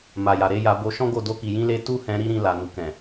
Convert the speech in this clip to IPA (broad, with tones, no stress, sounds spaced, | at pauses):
m a˨ j a˨ ɾ e˨˦ j a˧ b o˧ ʃ ɔ̃˦ ɡ o˦˨ d o˧ k i˨ j ĩ˧ l e˧ t u˦ h ɛ̃˧ ɾ i˦ ɾ ĩ˧ l a˨ n u˨ k ɛ̃˨